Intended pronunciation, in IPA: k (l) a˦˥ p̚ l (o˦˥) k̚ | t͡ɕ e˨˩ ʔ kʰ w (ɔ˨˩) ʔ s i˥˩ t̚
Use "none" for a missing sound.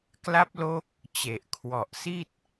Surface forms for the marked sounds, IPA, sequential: l, o˦˥, ɔ˨˩

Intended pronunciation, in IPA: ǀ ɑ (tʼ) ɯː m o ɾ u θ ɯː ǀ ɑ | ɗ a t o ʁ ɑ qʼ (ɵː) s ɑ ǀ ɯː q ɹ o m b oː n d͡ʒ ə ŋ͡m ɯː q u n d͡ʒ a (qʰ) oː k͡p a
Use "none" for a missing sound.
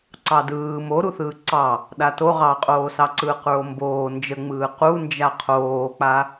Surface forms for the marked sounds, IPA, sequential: d, oː, qʰ

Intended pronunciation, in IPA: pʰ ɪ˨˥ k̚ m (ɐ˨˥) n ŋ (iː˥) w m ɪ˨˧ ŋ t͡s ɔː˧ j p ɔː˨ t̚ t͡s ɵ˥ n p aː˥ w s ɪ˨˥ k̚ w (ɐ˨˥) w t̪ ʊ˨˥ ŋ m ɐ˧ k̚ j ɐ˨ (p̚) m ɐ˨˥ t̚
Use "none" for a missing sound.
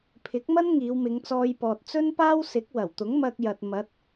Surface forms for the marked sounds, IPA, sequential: ɐ˥, iː˨˧, ɐ˨˩, t̚

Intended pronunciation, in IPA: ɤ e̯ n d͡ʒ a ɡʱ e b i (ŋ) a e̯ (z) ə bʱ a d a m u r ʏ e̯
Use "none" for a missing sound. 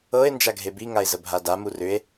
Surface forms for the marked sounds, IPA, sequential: ŋ, z

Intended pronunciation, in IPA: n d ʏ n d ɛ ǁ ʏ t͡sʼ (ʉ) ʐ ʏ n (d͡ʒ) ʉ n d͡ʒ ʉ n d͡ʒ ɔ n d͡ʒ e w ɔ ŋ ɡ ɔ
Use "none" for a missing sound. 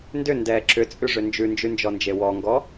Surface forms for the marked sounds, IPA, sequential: ʉ, d͡ʒ

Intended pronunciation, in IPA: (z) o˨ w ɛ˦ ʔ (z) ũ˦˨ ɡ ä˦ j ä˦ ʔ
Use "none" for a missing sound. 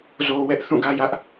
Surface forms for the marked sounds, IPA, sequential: z, θ

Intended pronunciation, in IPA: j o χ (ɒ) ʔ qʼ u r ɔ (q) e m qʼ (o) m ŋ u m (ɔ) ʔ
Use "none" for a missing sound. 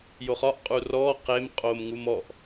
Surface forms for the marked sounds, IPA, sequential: ɒ, q, o, ɔ

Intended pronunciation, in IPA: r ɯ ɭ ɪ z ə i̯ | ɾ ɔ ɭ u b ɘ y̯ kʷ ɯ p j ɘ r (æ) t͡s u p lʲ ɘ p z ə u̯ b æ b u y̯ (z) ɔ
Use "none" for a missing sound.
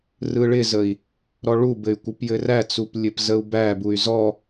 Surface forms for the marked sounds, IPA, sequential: æ, z

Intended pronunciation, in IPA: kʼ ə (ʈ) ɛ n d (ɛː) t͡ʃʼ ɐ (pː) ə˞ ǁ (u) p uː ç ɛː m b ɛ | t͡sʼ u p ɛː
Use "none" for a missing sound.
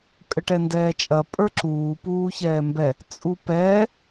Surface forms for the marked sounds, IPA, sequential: ʈ, ɛː, pʼ, uː

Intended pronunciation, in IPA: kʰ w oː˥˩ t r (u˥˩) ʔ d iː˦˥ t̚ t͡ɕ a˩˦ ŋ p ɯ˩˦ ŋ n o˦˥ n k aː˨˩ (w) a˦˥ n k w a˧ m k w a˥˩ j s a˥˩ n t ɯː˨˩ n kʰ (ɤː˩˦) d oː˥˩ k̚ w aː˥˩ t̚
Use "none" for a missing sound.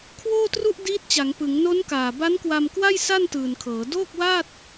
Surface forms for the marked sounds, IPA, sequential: u˥˩, b, ɤː˩˦

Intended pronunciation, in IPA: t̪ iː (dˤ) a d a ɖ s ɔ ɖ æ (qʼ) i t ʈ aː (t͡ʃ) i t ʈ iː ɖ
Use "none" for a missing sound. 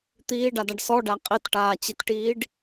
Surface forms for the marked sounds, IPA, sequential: ɖ, qʼ, t͡ɕ

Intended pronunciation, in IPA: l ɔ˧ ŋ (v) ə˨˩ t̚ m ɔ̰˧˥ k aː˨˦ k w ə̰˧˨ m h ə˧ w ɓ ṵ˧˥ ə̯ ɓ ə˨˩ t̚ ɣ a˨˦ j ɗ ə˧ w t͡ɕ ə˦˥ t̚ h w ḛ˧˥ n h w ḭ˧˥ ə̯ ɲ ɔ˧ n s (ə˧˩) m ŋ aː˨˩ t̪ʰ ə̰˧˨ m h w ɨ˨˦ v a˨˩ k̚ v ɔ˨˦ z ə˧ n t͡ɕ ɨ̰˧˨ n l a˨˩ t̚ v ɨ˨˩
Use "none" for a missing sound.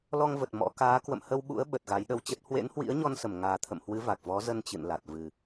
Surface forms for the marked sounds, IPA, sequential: v, ə˧˩

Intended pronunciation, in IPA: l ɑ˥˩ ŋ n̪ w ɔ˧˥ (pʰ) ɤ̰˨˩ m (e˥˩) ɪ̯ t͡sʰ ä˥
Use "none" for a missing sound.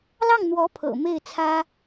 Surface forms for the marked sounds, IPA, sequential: pʰ, e˥˩

